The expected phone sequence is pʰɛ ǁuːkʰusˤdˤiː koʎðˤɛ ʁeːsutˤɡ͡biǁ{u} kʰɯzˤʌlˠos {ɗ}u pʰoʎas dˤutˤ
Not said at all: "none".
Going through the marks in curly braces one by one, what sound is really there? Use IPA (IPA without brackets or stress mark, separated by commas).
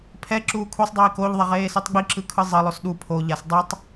ɯ, ɗ